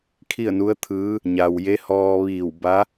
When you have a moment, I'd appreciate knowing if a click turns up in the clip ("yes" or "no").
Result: no